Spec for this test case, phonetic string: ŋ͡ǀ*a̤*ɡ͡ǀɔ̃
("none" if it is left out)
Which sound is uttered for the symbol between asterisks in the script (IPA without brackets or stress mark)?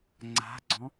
a̤